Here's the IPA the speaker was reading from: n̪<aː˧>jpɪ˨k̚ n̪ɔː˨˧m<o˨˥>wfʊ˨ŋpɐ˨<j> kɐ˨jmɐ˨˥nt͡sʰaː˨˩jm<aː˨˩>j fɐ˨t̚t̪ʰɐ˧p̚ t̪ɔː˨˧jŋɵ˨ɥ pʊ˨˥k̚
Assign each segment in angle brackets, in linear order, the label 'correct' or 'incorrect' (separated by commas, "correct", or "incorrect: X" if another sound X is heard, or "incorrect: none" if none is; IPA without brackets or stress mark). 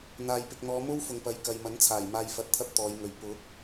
incorrect: aː˨, incorrect: o˥, correct, incorrect: aː˨